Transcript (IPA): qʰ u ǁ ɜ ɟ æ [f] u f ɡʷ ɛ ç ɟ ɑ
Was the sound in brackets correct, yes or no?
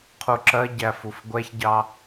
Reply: yes